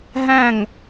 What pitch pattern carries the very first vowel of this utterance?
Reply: falling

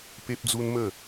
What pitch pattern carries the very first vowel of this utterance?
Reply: high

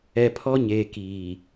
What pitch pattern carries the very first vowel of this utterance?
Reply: low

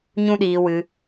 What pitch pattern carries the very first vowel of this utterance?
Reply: high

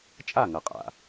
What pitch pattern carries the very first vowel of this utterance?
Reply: falling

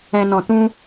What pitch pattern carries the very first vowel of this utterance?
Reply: low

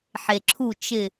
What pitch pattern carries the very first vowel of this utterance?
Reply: low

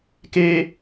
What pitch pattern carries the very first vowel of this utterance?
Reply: high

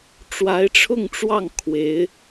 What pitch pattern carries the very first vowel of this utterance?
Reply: rising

